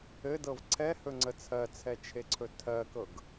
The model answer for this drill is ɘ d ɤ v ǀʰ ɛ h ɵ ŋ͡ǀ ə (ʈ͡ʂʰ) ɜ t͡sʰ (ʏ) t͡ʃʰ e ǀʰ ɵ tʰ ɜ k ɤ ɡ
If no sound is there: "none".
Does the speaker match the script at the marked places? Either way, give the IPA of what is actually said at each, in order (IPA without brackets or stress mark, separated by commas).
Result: t͡sʰ, ɛ